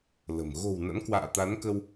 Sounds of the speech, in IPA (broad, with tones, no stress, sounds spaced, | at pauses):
l ə̤˨˩ m ɣ o̤˨˩ w n a̰˧˥ n k w a̰ː˧˨ t̪ a˨˦ n k ə˧ w